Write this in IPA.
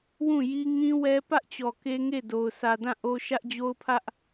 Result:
w ũ˦˨ j i˦ ŋ ĩ˦ w ɛ˦ p ä˦ ʔ t͡ɕ ɔ˨ k e˦ ŋ e˦˨ d o˨ ʊ̯ s ä˨ d ã˦˨ ʔ o˦ ʃ ä˦ ʔ d͡ʑ o˦ ʊ̯ pʰ ä˦ ʔ

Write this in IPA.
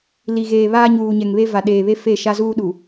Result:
l i˨ ɣ eː˨ β aː˦ ɲ uː˨ ɲ ɛ˨ ŋ β e˦ v a˨ ɗ eː˨ β e˦ f e˦˨ ʃ a˦ z uː˦ ɗ u˨

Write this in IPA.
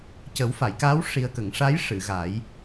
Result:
c ə˨˩˦ w f a˨˩˨ j k aː˧˥ w ʂ i˨˩ ə̯ k ə˨˩˨ ŋ ʂ a˧˥ j ʂ ɨ˨˩˨ ɣ a˨˩˦ j

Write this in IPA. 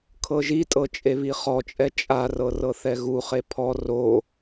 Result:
kʰ ɤ ʒ i tʼ ɤ t͡ʃʼ e β i χ ɔ t͡ʃʼ ɛ t͡ʃʼ a r ɤ r ɤ θ ɛ ɣ u χ e pʰ ɔ r o

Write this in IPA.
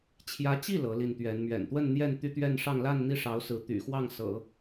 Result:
t͡ɕʰ j ä˧˥ t͡ɕ i˥˩ l ɤ˧˥ l i˥˩ n t̪ ɥ ɛ˧˥ n m ɥ ɛ̰˨˩ n t̪ w ə˥˧ n n̪ j ɛ˥˧ n t̪ y˥˧ t̪ ɥ ɛ˥˧ n ʂ ɑ˥˧ ŋ l a˥˧ n n̪ i˥˩ ʂ ɑ˧˥ ʊ̯ s ɹ̩˧˥ t̪ y̰˨˩ x w ɑ˥˩ ŋ s ɤ̰˨˩˦

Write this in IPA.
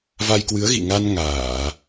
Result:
v a˧ j k w ɨ˨˦ ə̯ ɣ ḭ˧˨ ŋ a˧ n ŋ aː˧˩˨

